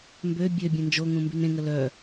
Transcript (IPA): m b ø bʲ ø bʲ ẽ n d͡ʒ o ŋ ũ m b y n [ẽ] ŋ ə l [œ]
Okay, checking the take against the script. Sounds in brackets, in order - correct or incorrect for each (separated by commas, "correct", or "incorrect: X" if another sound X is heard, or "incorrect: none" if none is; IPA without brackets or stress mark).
correct, correct